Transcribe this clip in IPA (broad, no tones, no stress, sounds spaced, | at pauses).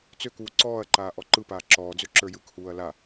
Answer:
t͡s ø k uː ǀ ɔː ɐ̯ ǃ aː ʔ ɔ ǃ ɯ p aː ǁ ɔː d͡z ø ǁ ə˞ j ɯ k h uː ɐ̯ l a